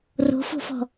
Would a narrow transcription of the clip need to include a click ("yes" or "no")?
no